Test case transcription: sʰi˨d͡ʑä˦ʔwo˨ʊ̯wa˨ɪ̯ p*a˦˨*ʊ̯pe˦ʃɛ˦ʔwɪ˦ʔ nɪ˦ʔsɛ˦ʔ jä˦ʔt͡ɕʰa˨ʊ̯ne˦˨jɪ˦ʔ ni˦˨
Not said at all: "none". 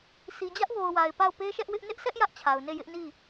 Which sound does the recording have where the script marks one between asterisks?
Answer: a˦˨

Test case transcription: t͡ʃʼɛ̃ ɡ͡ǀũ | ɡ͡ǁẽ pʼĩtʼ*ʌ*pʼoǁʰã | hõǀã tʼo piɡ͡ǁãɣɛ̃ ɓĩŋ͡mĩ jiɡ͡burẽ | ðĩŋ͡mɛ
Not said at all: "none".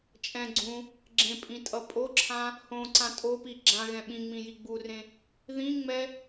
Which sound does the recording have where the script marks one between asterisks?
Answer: ʌ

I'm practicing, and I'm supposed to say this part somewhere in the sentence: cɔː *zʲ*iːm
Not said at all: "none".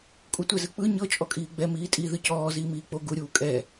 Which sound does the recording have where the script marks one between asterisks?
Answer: z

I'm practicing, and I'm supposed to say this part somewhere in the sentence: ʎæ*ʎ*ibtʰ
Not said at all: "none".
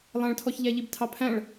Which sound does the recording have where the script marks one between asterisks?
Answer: ʎ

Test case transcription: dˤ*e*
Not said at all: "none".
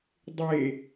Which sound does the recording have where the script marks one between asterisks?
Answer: e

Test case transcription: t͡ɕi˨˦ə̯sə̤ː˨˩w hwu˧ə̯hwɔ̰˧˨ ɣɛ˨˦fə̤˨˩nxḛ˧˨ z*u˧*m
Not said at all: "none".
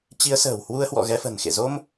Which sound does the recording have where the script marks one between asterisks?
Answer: o˧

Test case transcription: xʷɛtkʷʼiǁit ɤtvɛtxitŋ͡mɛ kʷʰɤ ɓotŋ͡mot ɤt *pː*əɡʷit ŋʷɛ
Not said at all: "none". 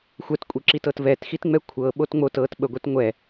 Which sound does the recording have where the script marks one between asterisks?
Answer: ɓ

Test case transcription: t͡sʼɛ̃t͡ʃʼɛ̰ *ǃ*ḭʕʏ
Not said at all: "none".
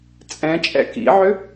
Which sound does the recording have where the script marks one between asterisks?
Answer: k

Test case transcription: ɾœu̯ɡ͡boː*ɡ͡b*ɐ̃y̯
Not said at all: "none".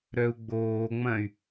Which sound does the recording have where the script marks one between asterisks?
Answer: ŋ͡m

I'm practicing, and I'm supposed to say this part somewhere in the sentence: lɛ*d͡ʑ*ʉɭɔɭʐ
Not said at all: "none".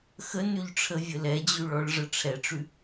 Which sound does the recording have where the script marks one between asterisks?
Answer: d͡ʑ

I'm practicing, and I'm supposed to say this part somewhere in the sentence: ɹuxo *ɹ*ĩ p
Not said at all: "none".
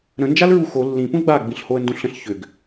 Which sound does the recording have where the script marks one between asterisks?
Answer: lː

